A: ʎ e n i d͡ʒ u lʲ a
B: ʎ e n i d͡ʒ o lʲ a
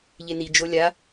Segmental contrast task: B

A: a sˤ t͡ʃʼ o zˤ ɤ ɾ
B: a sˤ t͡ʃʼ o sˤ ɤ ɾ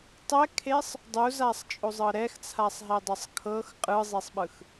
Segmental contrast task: A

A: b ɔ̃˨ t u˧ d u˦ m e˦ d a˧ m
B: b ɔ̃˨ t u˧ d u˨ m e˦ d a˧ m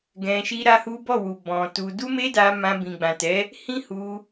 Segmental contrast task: A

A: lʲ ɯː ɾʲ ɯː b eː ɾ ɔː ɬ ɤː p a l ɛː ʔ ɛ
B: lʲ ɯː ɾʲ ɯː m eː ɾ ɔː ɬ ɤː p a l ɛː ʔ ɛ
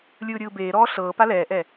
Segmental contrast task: A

